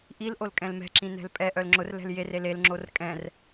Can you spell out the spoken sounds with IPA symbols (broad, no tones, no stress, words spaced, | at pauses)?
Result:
ʔil ʔolkʼɛ̃lmɛ̤ǁĩ nɛ̤lpʼɛʔœl ŋ͡ǁʊrlɛ̤l jerel elŋ͡ǁor kʼɛ̃r